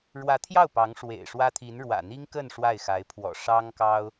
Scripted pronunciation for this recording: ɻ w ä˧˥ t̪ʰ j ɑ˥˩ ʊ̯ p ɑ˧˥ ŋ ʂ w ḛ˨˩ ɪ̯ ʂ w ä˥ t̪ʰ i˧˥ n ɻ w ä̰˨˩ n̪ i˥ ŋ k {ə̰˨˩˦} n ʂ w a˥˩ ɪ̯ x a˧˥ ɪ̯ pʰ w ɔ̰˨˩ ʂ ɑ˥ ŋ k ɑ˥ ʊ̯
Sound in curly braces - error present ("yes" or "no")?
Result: yes